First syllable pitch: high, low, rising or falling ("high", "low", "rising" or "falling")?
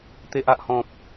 low